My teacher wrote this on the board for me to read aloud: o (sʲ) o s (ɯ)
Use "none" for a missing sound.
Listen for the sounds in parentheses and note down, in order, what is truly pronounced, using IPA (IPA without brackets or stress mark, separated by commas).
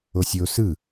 sʲ, ɯ